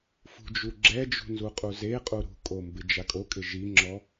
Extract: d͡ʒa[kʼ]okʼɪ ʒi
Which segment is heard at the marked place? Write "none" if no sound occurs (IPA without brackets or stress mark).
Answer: kʼ